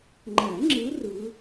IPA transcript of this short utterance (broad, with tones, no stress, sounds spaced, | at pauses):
ŋ͡ǃ æ˨˩˦ ŋ͡ǁ ɯ˨˦ r ɯ˨˦